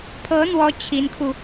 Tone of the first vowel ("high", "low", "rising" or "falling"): rising